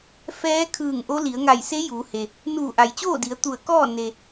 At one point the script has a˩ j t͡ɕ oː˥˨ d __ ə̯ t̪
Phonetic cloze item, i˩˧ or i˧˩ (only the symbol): i˩˧